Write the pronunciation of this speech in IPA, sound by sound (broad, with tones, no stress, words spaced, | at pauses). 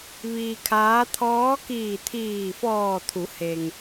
ʋiː˧kʰaː˧˥ t̪ʰɔː˧˥kiː˧˩t̪ʰiː˧˩ fɔː˧˩t̪ʰu˩˧he˩ŋ